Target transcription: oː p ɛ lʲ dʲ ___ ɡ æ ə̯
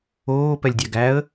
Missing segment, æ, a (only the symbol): æ